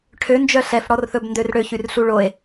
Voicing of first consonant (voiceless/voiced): voiceless